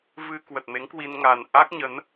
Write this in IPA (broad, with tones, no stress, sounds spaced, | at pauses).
v ɨ˧ k w ə˨˩ t̚ m e˨˦ ŋ k w i˧ n ŋ a˨˩ n ʔ a˦˥ k̚ ɲ ə˨˦ n